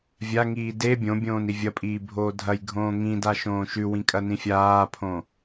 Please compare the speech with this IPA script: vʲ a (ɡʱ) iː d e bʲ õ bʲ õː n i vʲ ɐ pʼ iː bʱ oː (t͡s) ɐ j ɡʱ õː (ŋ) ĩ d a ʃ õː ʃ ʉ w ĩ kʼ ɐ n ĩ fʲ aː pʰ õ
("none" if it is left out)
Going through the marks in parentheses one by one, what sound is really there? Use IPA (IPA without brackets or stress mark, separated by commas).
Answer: ŋ, dʱ, ŋ